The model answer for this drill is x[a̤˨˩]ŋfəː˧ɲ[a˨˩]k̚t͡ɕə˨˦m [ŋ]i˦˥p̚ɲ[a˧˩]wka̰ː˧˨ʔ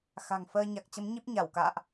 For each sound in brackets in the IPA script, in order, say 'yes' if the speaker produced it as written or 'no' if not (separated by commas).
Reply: yes, yes, no, yes